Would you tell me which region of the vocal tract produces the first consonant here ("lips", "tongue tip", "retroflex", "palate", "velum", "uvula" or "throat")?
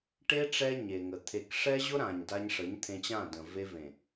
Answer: retroflex